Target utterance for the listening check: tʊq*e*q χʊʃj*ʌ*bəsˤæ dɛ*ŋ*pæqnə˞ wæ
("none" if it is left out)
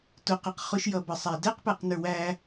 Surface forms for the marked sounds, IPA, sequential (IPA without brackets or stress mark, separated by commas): ɛ, ʌ, q